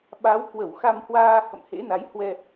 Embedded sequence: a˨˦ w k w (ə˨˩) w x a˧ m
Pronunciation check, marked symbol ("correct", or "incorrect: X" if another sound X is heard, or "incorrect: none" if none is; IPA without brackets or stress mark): incorrect: ə˧˩